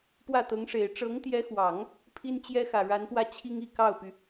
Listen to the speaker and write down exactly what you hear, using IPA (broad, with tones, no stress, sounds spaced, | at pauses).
p w ä˥˩ t̪ ɤ˧˥ ŋ ʂ e˨˩ ɪ̯ ʈ͡ʂ ɤ˧˥ ŋ t̪ j ɛ˧˥ x w ɑ˨˩˦ ŋ | pʰ i˥ n t͡ɕ j ɛ˥ x ä˨˩ ɻ a˧˥ n p w ä˥˩ t͡ɕʰ i˥ ŋ i˥˧ k ɑ˥˩ ʊ̯ p y˩